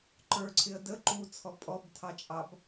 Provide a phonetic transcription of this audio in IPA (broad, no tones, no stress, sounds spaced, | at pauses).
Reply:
ǃ ə˞ ǀʰ ɪ ə̯ d ə ǃ u t͡sʰ ɔ pʼ ɔ b tʰ ɑ t͡ʃʼ ɑ b